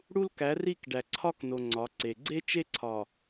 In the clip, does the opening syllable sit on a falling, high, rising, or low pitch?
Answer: high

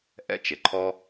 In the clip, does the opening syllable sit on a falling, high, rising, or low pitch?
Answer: high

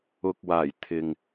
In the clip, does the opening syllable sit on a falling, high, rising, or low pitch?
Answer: low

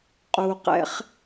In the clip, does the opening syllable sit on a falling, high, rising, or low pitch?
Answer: low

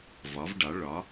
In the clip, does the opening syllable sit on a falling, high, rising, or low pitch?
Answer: rising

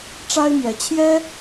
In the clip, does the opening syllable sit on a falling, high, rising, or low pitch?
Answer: high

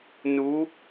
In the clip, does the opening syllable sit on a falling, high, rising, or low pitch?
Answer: rising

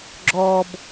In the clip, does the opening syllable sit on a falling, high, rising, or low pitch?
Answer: low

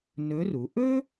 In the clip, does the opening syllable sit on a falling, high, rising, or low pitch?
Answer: rising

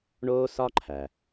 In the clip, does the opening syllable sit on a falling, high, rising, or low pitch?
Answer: high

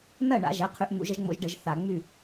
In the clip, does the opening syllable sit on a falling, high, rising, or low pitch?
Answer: falling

